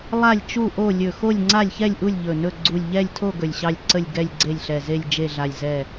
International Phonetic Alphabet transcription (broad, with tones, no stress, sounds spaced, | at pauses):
lˠ a˥˨ lʲ t͡ʃ u˥˨ ʔ o˥˨ lʲ ɵ˧˩ x o˥˨ lʲ ŋ͡ǀ a˥˨ lʲ ç ɛ˥˨ lʲ ʔ u˥˨ lʲ ʎ ɵ˧˩ n ɵ˥˨ ɡ͡ǀ u˧˩ lʲ ʎ ɛ˥˨ lʲ tʰ o˥˨ ɡ ɵ˧˩ lʲ ɕ ɑ˥˨ lʲ ǀ ə˥˨ lʲ ɡ ɛ˥˨ lʲ ɡ͡ǀ e˥˨ lʲ ɬ ɛ˧˩ z e˥˨ lʲ d͡ʒ e˥˨ ɮ a˧˩ lʲ z ɛ˧˩